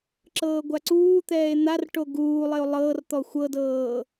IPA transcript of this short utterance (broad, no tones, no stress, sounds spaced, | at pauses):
ǁ ɤː ɡʷ a ǀ uː t̪ ɛː e̯ n̪ a r ʈ o ɡ uː lˠ e o̯ lˠ ɤː r t̪ ɔ xʷ ɤ d ɤː